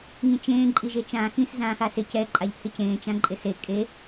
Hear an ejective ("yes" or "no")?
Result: yes